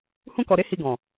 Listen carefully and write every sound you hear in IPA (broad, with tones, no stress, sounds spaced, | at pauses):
h ũ˧ k ɔ˨ ɾ e˨˦ h i˧ ɡ ɔ̃˨